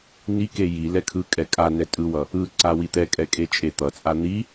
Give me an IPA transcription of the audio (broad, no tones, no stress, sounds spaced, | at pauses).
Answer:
n i k e j i l ɛ kʰ ɯ kʼ ɛ kʼ a n ɛ tʼ ɯ w ʌ | ɯ ǀ a w i t̪ ɛ kʼ ɛ kʼ e t͡ʃʼ e t̪ ʌ t͡sʼ a n̪ i